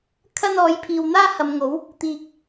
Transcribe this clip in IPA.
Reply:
kʰ ɐ˧ n ɔː˨˧ j pʰ iː˨ w n̪ aː˧ h ɐ˨ m ŋ o˨˧ w | t̪ iː˧ k̚

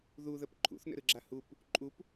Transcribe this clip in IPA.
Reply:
ð u ð ə p ǃʰ ṵ θ n ə̰ ɾ ɯ ɡ͡ǁ a h u p | ǃʼ u p

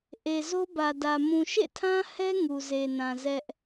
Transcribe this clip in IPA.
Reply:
ʔ e˨ z o˦ b ä˨ d ä˨ m ũ˨ ʃ ḛ˦˨ tʰ ã˦ h ɛ˦ ŋ u˨ z e˨ n ã˨ z ɛ˦ ʔ

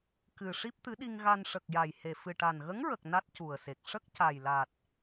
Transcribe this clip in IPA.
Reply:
k ɨ˨˩ ʂ i˦˥ p̚ t̪ ɨ˧˥ ɗ i˧ ŋ ɣ a˧ n ʂ ə˨˩ k̚ j a˨˩ j h e˨˩ f ɨ˨˩ ʈ a˨˩ n ɣ ə˧˥ ŋ ɹ ə˨˩ k̚ n a˦˥ t̚ c u˨˩ ə̯ s e˨˩ k̚ ʂ ə˦˥ k̚ c a˨˩ j l a˨˩ t̚

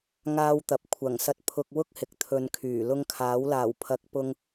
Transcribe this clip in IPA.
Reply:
ŋ aː˧ w t̪ ɐ˨ p̚ kʷʰ ɐ˨˩ ŋ s ɐ˧ t̚ pʰ ʊ˧ k̚ w ʊ˥ k̚ h ɪ˨ k̚ t̪ʰ ɵ˨˧ n kʰ yː˨˩ l ʊ˧ ŋ kʰ aː˨˥ w l aː˨˩ w pʰ ɐ˨˥ k̚ p ʊ˧ ŋ

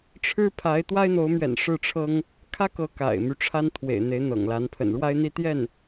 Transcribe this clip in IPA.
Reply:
ʈ͡ʂʰ ɻ̩˥ pʰ a˧˥ ɪ̯ t̪ w a˥ ɪ̯ n̪ o˧˥ ʊ̯ m ɥ ɛ̰˨˩ n ʂ ɻ̩˥˩ ʈ͡ʂʰ ɤ˥ ŋ | kʰ ä˥ k ɤ˧˥ k a̰˨˩ ɪ̯ m y˦ ʈ͡ʂʰ a˥ n t̪ʰ w ḛ˨˩ ɪ̯ n̪ e˧˥ ɪ̯ n̪ ɤ̰˨˩ ŋ l a˧˥ n pʰ ə̰˨˩ n ɻ w a˥ ɪ̯ n̪ i˥ t̪ j ɛ˥˩ n

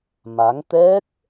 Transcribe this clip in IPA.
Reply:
m a˨˦ ŋ t̪ ɛ˦˥ k̚

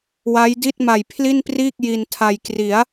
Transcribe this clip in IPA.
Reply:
w a˦˥ j d i˥˩ t̚ m a˨˩ j pʰ l i˥˩ n p r iː˥˩ k̚ j i˧ n tʰ a˧ j k r i˩˦ a̯

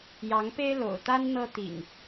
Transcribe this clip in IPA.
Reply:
j ɑ˨˦ ŋ p e˦ ɪ̯ l o̰˨˩ ʊ̯ t̪ a˦ n n̪ ɤ˦ t̪ ḭ˨˩ ŋ

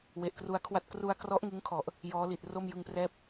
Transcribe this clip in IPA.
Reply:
w e˨˩ ʔ k r u˧ a̯ kʰ w a˦˥ t̚ k r u˧ a̯ k r ɔ˦˥ ʔ ŋ ɯ˦˥ ŋ kʰ ɔ˨˩ ʔ | j ɔː˦˥ l i˨˩ t̚ r o˥˩ m j ɯ˧ ŋ p r ɛː˥˩ p̚

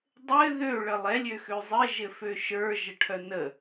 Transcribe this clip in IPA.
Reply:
dˤ ɘ ð ø ɭ ə lˠ ɛ lʲ ø x ø zˤ ɘ ʒ ɘ f ø ʃ ə˞ ʒ ə ʈʰ œ n ə

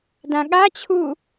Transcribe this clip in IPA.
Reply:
d ã ɠ a t͡ɕʰ u

